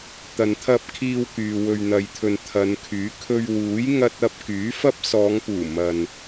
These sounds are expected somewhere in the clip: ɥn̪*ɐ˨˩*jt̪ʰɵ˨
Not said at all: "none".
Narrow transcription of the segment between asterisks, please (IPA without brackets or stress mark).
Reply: ɐ˨